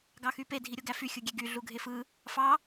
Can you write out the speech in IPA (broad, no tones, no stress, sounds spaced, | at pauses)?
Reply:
ɡ ɑ x y p e dʱ i ɾʲ o ɡ æ f y xʲ ɯ ɡʲ e ɡ y ɮ u ɡʱ e f ɯ | f ɑ